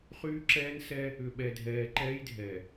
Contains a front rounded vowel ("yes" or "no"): yes